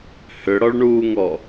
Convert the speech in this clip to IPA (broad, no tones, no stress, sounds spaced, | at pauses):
h ʏ ɽ ɔ ɭ ɳ uː ŋ ɔ